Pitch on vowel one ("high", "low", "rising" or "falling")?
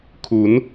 rising